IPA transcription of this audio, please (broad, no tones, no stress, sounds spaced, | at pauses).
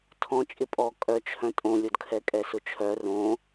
tʰ ɔ̃ t͡ʃʼ ɪ pʼ ɔ kʼ œ t͡ʃʰ œ̃ tʼ õ lʲ o d kʰ ɛ kʼ ɛ s ʊ t͡ʃʰ œ r õ